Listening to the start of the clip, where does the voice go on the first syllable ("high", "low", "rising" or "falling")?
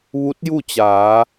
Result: rising